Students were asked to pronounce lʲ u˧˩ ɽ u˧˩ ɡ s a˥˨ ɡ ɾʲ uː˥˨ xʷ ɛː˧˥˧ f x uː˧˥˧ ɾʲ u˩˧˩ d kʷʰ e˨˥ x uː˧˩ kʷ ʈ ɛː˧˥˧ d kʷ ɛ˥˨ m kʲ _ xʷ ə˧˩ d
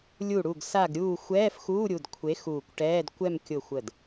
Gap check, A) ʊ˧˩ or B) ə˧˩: A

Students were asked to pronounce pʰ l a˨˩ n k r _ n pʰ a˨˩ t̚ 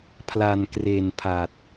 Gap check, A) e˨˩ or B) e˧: A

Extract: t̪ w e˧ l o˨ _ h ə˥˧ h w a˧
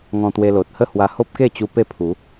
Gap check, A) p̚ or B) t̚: B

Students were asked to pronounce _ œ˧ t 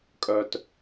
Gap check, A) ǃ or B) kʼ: B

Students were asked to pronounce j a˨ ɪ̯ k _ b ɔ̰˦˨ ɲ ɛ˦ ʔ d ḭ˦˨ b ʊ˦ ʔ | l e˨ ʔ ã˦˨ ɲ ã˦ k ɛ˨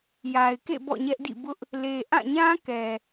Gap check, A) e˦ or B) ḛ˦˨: B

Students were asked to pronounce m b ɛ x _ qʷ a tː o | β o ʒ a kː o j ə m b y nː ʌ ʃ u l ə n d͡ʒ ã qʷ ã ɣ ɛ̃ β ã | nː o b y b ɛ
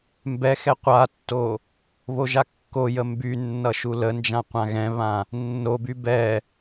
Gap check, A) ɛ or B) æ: A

